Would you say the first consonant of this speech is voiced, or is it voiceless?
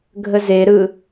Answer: voiced